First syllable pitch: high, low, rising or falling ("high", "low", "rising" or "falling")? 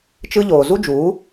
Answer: high